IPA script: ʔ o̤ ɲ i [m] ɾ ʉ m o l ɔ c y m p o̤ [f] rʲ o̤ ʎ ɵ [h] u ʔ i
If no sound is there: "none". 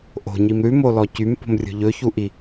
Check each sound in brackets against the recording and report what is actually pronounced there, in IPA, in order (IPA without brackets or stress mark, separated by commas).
m, m, ç